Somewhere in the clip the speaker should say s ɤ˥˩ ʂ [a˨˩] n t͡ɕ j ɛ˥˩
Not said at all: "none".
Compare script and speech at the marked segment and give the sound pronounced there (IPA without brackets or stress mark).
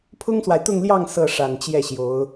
a˨˩